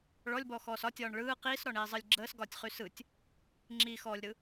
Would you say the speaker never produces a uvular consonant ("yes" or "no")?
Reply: no